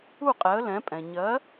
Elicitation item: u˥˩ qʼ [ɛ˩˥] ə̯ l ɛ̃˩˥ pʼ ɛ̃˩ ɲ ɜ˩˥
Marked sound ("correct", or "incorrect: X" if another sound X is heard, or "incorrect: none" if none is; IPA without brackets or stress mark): correct